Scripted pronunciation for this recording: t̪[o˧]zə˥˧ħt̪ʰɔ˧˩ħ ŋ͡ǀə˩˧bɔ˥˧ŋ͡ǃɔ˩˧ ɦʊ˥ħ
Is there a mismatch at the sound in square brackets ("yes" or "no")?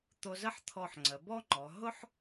no